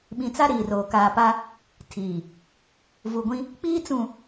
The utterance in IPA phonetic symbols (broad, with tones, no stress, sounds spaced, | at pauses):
ɓ ĩ˨ t͡s a˦ ɾ iː˨ r oː˨ k aː˨ p a˦ | tʰ iː˨ | v u˨ ɡʷ ĩ˦ | k͡p iː˦ t͡s ũ˨